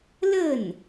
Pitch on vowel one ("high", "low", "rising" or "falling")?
falling